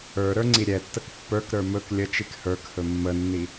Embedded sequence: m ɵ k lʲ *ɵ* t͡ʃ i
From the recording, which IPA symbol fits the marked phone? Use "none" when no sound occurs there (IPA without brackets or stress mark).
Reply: ə